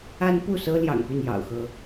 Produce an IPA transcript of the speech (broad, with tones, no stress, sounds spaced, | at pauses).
a˥ n p u˥˩ s ɤ˥ l j ɑ̰˨˩ ŋ p y˥˩ n j ɑ̰˨˩ ʊ̯ x ɤ˧˥